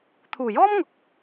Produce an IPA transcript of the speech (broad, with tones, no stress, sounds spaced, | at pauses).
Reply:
t̪ʰ uː˨˩ j ɔː˥ m ŋ ʊ˨ k̚